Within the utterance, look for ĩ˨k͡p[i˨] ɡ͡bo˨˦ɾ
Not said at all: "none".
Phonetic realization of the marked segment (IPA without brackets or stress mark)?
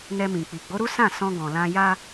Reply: i˨